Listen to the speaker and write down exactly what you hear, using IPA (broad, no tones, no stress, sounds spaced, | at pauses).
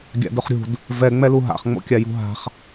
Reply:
ɡʲ a̰ d ʊ χ ɾʲ ṳ d | v ɛ ŋ͡m ɛ l u ɦ a̰ χ ŋ͡m o̰ kʲ a j ṳ ɦ a̤ χ